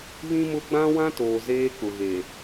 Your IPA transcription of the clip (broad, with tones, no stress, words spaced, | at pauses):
βĩ˦mʊ˦ ɡ͡bã˦wã˦toː˨ zeː˦k͡pʊ˨ɣe˨